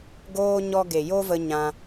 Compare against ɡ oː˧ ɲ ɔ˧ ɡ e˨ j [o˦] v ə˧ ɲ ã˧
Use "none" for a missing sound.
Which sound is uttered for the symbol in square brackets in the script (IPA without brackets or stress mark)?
o˦